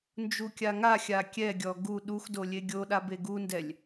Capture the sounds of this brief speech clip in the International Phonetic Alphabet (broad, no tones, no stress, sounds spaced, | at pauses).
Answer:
n d͡ʒ u kʲ a ŋ a xʲ a kʲ ɛ ɡʲ ɔ ɡ u ɗ u x d o lʲ e ɡʲ o ɗ a b e ɡ u n d ɛ lʲ